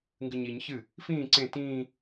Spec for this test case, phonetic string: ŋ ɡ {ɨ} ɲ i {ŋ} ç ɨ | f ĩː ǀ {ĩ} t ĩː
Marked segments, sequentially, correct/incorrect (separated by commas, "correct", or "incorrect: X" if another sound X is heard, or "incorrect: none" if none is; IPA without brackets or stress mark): correct, incorrect: ɲ, incorrect: ẽ